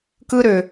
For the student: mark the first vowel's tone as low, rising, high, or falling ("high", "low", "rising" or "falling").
high